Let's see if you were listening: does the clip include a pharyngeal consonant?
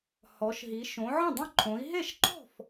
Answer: yes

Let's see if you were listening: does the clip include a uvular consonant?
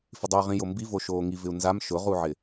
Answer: yes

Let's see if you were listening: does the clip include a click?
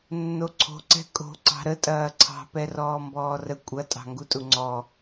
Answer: yes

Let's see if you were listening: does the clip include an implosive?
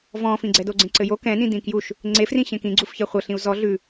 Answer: no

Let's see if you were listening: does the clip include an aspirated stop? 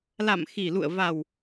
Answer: no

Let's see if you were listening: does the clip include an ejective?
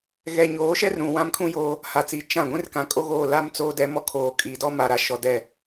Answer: yes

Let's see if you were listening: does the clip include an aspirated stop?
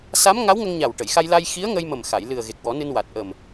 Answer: no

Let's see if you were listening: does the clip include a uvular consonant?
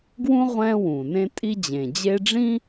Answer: yes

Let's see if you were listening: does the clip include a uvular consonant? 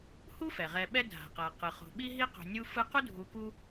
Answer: yes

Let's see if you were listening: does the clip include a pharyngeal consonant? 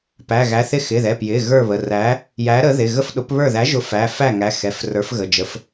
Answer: no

